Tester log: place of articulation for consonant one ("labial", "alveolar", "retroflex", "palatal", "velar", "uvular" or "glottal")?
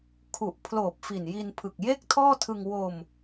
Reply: velar